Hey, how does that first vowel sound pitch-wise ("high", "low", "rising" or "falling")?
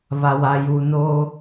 low